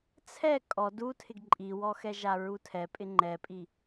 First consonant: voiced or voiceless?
voiceless